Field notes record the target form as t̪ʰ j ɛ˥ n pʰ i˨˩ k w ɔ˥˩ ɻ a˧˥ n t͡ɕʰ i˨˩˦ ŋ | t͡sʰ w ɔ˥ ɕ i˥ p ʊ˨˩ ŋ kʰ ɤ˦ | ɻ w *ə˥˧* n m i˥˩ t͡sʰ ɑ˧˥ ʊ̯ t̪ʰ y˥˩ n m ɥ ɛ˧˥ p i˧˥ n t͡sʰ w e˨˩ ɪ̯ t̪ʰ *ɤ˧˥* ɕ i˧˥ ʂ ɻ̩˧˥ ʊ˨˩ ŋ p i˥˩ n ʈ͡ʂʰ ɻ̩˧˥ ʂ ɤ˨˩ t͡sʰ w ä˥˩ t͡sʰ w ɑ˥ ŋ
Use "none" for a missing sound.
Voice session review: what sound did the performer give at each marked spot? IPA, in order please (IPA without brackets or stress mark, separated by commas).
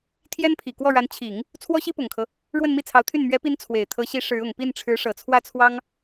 ə˥˧, ɤ˧˥